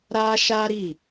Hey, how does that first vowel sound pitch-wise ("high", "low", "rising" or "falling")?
high